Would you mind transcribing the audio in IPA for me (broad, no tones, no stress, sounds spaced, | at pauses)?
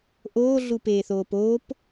ʔ oː ɮ u p eː θ oː p oː p